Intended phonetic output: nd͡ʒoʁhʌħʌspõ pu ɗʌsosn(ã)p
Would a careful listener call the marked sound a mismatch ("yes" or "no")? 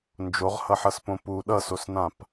no